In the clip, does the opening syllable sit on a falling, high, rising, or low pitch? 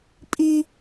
high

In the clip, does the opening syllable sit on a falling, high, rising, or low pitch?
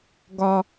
high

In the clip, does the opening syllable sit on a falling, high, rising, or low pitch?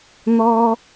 high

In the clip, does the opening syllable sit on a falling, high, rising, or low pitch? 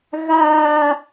high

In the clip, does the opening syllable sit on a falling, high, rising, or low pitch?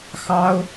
high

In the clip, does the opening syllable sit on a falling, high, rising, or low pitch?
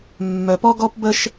low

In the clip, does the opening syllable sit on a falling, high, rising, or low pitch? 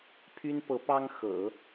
high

